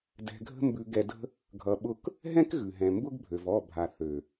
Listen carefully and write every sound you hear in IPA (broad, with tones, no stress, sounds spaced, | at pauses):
d ɛ̤˧ ɡʱ ə̤˦ m b ʉ˧ ɡ ɛ˧ d ə̤˦ | ɡʱ ʌ˧ ɓ ʊ˦ k | ɦ ɛ̃˦ k ɣ ʉ˨ ɦ ɛ̃˨ m b ʊ˦ ɡ bʱ ø˨ v ɔ˦˨ bʱ a˨ θ ø˨